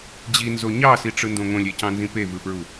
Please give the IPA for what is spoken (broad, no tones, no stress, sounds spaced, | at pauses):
d͡ʑ i n z o ɲ ɑ s i ʈ͡ʂ ɯ n d õ ŋ õ lʲ e c ɑ̃ n z ĩ p e v ɯ f ɹ u